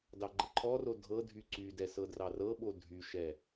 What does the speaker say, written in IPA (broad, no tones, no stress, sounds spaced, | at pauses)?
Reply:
d ɑ ɡ͡ǃ ə ǃʰ ɔ r o dʱ ɤ dʱ y ǀ y d ɛ s ɤ d r ɑ r ɤ ɓ o dʱ y ʃ ɛ